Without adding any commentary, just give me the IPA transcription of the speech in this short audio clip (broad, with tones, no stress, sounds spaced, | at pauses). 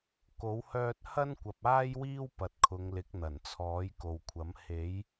k o˨˥ w h œː˥ t̚ h ɐ˥ n kʷ ɐ˨ p̚ aː˥ j w iː˥ w p ɐ˨ t̚ kʰ ʊ˨˧ ŋ l ɪ˨˥ k̚ n̪ ɐ˨˩ n t͡sʰ ɔː˨˥ j k o˨ w kʷʰ ɐ˨˥ m h e˨˥ j